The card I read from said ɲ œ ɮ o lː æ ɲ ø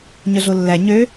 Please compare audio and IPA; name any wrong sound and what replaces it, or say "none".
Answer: none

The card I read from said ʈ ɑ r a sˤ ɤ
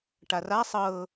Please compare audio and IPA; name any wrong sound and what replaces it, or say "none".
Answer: ɑ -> a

